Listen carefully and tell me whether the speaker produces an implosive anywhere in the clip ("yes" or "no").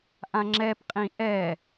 no